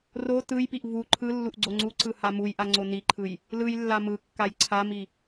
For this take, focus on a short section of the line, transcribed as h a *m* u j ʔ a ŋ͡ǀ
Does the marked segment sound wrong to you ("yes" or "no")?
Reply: no